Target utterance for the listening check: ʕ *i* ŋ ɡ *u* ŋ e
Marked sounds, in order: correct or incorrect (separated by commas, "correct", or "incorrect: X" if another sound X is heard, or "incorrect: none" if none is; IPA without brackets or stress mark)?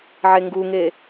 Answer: incorrect: e, correct